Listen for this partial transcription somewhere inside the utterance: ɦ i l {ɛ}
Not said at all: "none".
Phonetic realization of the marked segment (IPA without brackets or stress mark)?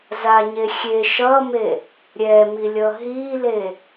e